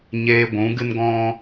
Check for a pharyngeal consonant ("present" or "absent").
absent